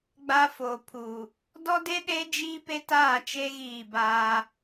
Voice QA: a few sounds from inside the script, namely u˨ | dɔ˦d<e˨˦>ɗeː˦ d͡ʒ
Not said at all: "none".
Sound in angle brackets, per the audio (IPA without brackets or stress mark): e˦